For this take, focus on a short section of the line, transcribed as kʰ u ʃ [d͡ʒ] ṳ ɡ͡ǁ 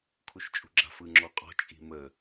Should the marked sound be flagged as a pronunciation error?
yes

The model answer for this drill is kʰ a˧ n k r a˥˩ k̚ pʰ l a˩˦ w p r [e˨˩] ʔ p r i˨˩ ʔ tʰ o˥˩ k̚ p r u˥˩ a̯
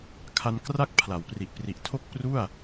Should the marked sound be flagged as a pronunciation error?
yes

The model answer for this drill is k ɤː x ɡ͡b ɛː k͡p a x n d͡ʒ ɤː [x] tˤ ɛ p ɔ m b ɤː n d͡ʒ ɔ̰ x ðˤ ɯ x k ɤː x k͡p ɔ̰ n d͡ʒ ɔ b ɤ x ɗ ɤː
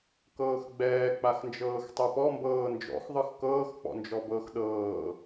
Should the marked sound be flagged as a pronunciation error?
no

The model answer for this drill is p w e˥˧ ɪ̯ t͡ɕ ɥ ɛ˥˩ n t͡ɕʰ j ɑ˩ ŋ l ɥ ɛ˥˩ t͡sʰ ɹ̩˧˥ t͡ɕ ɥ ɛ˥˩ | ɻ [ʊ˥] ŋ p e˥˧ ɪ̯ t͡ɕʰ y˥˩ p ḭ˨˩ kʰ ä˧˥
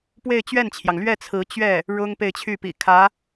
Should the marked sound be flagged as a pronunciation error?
no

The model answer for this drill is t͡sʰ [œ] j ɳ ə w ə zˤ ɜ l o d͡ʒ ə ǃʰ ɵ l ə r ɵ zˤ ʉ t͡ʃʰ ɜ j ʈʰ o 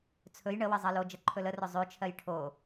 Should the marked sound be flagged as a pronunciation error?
yes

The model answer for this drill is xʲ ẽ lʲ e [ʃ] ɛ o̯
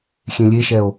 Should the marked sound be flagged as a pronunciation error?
no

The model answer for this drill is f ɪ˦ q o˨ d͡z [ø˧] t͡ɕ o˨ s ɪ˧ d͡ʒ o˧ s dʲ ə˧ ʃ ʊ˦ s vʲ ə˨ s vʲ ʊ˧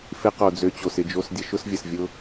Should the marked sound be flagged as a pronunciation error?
no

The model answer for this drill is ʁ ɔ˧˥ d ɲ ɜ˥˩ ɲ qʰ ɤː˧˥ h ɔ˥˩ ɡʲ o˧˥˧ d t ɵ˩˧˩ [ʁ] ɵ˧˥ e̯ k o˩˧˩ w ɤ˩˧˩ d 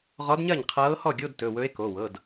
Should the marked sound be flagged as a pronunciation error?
yes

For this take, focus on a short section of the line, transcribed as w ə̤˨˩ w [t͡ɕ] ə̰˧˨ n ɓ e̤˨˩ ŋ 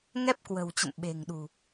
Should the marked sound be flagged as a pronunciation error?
no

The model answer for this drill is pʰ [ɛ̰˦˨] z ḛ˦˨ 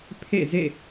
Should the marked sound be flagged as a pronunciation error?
yes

